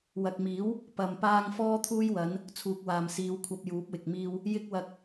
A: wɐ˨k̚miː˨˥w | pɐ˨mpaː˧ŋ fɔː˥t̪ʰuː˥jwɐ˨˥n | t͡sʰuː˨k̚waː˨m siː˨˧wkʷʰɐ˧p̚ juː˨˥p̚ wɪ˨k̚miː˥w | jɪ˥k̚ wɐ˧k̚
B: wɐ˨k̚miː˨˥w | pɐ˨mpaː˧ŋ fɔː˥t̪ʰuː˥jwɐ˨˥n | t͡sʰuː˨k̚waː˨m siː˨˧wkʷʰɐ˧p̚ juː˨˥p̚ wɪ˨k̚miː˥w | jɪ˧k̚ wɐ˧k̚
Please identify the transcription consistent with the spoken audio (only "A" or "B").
A